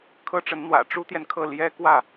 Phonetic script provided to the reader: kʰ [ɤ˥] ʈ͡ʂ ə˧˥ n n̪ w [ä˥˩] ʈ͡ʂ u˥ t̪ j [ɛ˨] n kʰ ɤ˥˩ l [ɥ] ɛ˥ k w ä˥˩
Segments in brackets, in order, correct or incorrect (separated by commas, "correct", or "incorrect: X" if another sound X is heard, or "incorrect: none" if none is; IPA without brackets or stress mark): correct, incorrect: ä̰˨˩, correct, incorrect: j